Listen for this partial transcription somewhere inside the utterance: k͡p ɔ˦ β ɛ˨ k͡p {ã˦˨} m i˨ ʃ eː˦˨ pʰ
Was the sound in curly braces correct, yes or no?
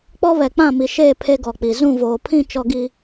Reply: yes